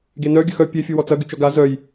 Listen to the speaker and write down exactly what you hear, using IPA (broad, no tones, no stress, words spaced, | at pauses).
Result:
ɡenœ ɡʲəxœ pʲe fʲuwɔt͡sɐ ɡyt͡ʃɔɡa zœj